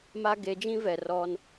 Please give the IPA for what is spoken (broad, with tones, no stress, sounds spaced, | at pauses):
m a˦ ɡ e˨˦ d͡ʒ ĩ˦ v ɛ˨ r ɔ˦ n